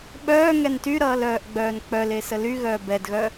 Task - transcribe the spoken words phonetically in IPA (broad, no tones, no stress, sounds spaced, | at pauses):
ɓ œː ŋ ɛ n t y ɾ ʌː l œː ʔ ɡ͡b œː n k͡p œ l e s ə l y ɣ œː b ɛ d ɣ œ